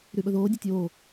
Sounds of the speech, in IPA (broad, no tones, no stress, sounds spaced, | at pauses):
ɾ y ɓ ɵ ð oː dʲ ɵ tʲ oː